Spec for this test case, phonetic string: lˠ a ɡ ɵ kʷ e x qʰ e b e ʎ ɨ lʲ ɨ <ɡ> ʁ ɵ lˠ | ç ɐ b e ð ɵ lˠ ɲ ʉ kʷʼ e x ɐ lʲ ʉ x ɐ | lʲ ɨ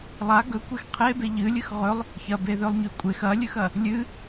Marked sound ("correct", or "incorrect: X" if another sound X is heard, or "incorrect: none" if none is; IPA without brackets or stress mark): incorrect: x